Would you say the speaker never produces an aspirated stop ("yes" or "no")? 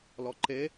yes